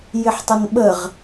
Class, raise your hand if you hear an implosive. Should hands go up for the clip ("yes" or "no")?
yes